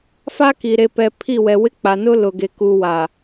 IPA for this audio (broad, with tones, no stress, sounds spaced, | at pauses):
f a˦ k i˨ ɾ e˨ p ɛ˨ pʰ i˦˨ w ɛ˨ w ɪ˦ k͡p a˨ n ʊ˦ l ʊ˨ ɡ e˨ k u˨ w a˨